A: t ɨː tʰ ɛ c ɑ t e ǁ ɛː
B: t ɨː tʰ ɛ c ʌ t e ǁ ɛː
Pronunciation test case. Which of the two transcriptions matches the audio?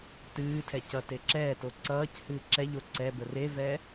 B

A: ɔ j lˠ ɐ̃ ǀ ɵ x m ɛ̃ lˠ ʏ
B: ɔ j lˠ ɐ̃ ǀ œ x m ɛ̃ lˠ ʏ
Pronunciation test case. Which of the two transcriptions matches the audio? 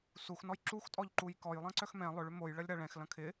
B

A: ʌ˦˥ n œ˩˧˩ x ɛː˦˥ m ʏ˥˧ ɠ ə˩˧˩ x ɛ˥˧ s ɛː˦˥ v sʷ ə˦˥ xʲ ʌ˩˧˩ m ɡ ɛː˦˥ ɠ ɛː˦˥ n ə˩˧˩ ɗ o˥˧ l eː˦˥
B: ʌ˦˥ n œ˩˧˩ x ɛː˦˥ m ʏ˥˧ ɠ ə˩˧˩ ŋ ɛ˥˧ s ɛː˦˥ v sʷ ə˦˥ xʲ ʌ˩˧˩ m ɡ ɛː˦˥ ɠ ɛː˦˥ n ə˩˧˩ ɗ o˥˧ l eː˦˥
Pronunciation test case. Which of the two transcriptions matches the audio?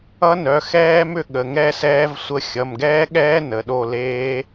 B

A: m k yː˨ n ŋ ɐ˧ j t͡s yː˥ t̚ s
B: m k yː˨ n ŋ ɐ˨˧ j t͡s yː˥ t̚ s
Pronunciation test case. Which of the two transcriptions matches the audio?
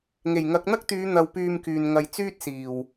A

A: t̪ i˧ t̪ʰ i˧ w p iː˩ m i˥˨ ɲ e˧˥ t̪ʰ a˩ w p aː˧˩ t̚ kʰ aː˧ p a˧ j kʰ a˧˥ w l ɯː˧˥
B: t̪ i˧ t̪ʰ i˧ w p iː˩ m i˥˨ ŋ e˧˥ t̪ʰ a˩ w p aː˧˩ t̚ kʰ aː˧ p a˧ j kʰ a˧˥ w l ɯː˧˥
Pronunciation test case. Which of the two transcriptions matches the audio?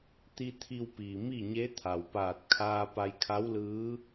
A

